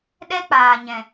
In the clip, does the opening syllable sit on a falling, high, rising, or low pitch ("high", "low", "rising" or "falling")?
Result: high